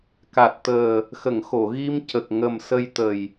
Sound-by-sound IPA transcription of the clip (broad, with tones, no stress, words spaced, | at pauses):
ka˨˩t̚t̪əː˨˩ | xə˨˩˨ŋxo˨˩˨ɣi˧mcə˨˩k̚ ŋə˨˩msə˧jt̪ə˨˩j